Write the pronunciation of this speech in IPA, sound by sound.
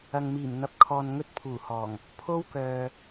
ɐ˨ ŋ m iː˨˩ m n̪ ɐ˨ p̚ kʰ ɔː˨ n ŋ ɵ˥ t̚ pʰ uː˨˩ h ɔː˨˩ ŋ | pʰ o˥ w k œː˨

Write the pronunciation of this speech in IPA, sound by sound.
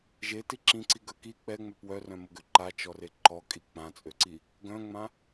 ʒ e t i ǁ ĩ ǀ i ɡ œ k i k͡p ɛ ŋ͡m œ p w œ r œ̃ m o ɡ ø ǃ a t͡ʃ ɔ r e ǃ ɔ kʼ i k͡p ã t͡sʼ ø ǀ i | ɡ œ̃ ŋ͡m ã

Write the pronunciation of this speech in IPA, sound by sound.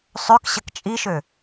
sˤ ø k ɕ ə k t͡ʃʼ i ʃ ø

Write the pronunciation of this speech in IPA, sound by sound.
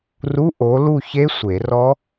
r u˧˥˧ ʔ o˨˥ l u˥˨ ç e˦˥ sʷ e˨˩˦ r ɔ˦˥

